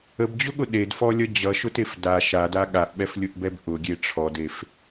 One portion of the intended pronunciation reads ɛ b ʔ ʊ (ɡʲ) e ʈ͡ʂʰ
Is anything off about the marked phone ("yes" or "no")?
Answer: no